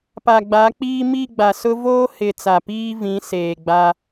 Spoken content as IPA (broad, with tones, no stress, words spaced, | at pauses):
pa˨ɡ͡ba˨˦k͡piː˦ mi˦˨ɡ͡ba˨sʊ˦ voː˦ hɪ˨ t͡sa˨piː˦vĩ˨˦ seː˨ɡ͡ba˦